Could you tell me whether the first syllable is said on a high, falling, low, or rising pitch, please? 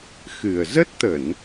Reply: low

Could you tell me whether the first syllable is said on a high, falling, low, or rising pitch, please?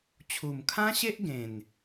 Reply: low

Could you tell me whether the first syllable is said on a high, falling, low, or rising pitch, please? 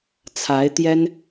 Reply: rising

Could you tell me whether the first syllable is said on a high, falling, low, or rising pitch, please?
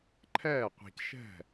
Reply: falling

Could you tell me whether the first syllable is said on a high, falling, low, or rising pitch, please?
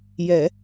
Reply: low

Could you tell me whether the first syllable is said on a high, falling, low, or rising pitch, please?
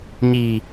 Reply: low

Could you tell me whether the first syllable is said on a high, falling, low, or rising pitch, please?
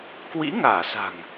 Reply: rising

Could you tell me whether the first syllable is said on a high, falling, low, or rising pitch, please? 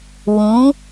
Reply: rising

